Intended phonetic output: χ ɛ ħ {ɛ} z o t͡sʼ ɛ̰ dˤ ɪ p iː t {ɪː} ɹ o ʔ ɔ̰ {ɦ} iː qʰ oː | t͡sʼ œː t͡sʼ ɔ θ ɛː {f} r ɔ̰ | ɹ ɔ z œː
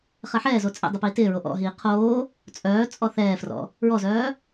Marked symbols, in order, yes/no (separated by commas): no, yes, yes, yes